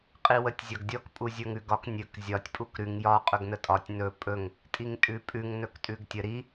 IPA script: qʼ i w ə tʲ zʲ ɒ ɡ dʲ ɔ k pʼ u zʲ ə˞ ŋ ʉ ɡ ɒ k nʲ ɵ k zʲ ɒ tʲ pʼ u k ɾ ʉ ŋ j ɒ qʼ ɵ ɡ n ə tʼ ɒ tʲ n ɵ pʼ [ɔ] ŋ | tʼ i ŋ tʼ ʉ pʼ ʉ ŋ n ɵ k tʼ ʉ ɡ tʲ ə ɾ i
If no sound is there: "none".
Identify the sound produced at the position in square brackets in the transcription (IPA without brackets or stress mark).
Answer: ɵ